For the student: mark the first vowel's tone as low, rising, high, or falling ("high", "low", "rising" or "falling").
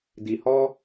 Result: low